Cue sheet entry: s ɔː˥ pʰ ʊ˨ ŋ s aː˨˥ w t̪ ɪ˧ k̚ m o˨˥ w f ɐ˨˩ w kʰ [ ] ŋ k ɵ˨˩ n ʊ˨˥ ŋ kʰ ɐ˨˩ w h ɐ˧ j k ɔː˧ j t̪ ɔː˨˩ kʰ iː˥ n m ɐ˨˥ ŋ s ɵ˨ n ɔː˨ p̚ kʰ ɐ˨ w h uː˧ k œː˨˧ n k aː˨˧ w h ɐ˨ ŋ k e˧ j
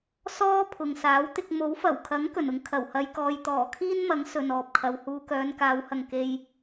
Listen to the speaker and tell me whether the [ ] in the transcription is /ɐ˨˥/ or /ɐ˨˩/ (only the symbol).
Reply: ɐ˨˥